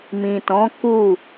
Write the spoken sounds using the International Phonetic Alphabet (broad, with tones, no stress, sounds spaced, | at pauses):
m ĩ˨ t ɔ̃˨˦ k u˦˨